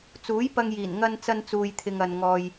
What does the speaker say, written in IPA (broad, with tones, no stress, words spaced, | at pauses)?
t͡suː˨˥jpɐ˧ŋjiː˨˩n ŋɐ˧n t͡sɐ˧nt͡suː˨jt̪ʰɪ˨ŋ ɐ˨n ŋɔː˧j